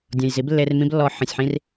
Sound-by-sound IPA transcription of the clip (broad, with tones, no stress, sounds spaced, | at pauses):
dʲ ɔ̃˨ j z i˨˦ b lː e˧ r m ĩ˧ b lː ɔ˨ ħ ə̃˨ sʲ ħ ĩ˧ r